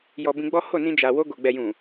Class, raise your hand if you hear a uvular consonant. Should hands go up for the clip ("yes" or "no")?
no